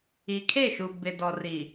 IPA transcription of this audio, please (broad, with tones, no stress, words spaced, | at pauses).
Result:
i˨kʰe˦˨ʃu˨ bɪ˨dɔ˨ ri˨